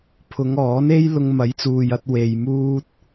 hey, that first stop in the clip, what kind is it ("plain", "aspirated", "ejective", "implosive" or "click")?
aspirated